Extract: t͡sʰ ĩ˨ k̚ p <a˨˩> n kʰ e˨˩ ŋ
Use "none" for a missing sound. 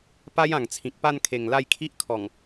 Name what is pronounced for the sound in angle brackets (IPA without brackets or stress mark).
a˥˧